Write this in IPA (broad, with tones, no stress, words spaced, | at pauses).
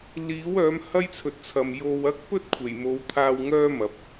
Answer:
liː˨˥w œː˨˥mhɐ˥jt͡sʰɵ˨t̚t͡sʰɐ˨m jo˧wɐ˥k̚ pɵ˥t̚kʷʰe˨˩j mo˨˧wt̪ʰaː˧w ŋœː˥mɐ˨˥p̚